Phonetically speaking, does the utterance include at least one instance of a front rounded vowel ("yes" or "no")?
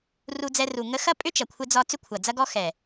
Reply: yes